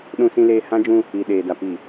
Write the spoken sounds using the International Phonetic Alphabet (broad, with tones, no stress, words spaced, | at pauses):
ɗũ˨sĩ˨leː˨ hã˦d͡ʒũ˦ | i˨ɗeː˨da˨ pi˨